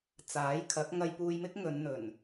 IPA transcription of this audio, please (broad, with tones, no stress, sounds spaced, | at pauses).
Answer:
t͡s aː˨˥ j kʰ ɐ˨˥ k̚ ŋ ɐ˧ j p uː˧ j m ɪ˥ k̚ ŋ ɵ˨˧ n n̪ ɵ˨˩ n